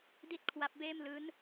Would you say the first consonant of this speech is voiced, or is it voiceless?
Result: voiced